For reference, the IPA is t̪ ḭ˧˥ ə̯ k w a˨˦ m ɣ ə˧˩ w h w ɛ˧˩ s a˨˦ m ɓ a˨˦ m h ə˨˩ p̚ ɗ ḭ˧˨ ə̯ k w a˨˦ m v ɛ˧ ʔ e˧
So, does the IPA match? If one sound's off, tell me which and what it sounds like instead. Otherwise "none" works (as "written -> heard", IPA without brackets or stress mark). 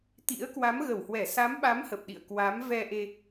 none